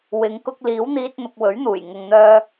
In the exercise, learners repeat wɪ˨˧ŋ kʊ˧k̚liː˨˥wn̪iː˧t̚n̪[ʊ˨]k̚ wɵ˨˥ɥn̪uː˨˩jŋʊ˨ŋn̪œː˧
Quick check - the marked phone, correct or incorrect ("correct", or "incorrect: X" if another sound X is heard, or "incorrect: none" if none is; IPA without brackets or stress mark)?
correct